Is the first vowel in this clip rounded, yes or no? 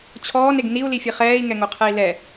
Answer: yes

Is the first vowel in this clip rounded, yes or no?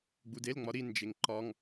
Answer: yes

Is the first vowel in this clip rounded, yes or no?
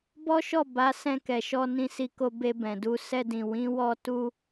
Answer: yes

